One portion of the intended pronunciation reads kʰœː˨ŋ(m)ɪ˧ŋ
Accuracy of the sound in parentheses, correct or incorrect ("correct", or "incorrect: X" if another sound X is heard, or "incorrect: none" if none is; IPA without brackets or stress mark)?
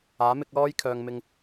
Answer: correct